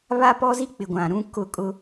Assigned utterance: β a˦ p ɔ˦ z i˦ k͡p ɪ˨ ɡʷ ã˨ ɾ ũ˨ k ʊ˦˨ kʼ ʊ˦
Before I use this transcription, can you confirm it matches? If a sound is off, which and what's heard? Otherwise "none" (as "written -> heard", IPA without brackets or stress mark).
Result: ũ˨ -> ũ˦